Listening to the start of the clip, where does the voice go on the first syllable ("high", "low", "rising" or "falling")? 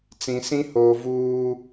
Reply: low